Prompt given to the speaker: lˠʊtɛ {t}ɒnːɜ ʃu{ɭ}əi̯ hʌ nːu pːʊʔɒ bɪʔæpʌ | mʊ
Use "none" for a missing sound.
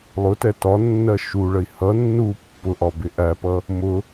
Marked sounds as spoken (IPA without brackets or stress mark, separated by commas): t, ɭ